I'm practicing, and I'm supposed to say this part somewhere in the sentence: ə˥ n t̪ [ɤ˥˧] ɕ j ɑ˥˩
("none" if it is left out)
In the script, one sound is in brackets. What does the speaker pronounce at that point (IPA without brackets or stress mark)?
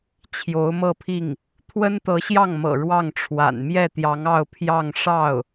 ɤ˧˥